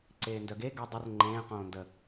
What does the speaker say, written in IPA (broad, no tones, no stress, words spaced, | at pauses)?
ǀeːndœɡe ɡə dˤər ŋ͡ǃẽː qõːndə